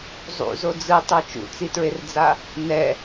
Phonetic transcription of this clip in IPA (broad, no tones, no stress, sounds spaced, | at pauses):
zˤ ṵ z o d͡z ɯ tˤ o t͡ʃ ṵ t͡s i t ɹ e r d͡z a | n ɛ